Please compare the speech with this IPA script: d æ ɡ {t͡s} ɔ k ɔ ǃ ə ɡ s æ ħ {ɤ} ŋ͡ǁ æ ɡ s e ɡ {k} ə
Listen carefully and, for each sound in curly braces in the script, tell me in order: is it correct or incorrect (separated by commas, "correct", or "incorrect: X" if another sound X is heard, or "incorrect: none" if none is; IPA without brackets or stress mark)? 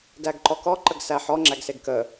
incorrect: ǃ, incorrect: ɔ, correct